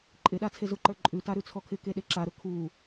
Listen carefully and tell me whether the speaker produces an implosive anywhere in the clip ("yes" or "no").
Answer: yes